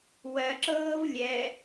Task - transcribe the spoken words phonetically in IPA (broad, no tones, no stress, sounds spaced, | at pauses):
w ɜ ǁ ɤː v lʲ ɛ